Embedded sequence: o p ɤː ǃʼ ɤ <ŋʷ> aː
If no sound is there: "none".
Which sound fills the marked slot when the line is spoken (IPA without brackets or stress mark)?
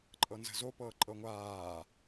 ŋʷ